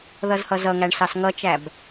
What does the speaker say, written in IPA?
ð ʌ z h ʌ z ʌ ŋ æ ɳ s ɑ s ŋ ʌ t͡ʃ æ b

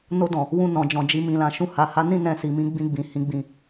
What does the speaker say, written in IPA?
n o˧ d ɔ̃˨ | w ũ˧ n ɔ̃˨ d͡ʒ ɔ̃˨ d͡ʒ i˧ m ĩ˨ l ã˨ ʃ ũ˧ h a˨ h a˨˦ n ĩ˦˨ n ɛ̃˧ s i˨ m ĩ˨˦ ɡ͡b ĩ˧ ɡ͡b ĩ˨ h ĩ˨˦ ɡ͡b ĩ˧

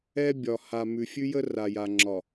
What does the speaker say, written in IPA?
ɛ˦ bʲ ɒ˨ h a˨ m ʉ˨ fʲ ʉ˦ j ə˦ r a˨ j a˨ ŋ͡ǁ ɒ˨

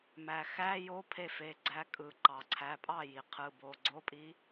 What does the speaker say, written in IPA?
m æ˩ x æ˧˥˧ j o˧˥ pʰ e˥˩ f e˩˧˩ ɡ͡ǀ æ˧˥ kʼ ɯ˩ ǃ ɑ˩ ǀʰ æ˩˧˩ pʼ ɑ˥˩ j i˩ qʰ ɯ˩˧˩ b o˩˧˩ ɡ͡ǀ o˧˥˧ pʼ i˧˥

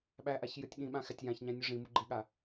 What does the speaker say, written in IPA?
ɓ æ ʔ a ç j ɨ tʲ ɠ ĩ ɓ ã x æ tʲ j ã ç ɲ æ̃ nʲ u ʐ ĩ m u ɡ͡ǃ i ɠ a

